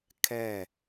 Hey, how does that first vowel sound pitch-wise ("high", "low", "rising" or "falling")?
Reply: falling